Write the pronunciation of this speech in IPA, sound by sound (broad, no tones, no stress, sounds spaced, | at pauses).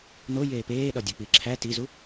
n o j eː p eː ɗ ɒ dʲ o k͡p i ǁʰ æ t i z u